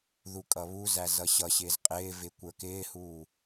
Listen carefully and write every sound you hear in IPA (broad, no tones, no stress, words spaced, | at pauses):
ðukʼʌβuzæ zʌɕʌɕɪːz qʼɪːvɪ kʷə˞kɪːhuː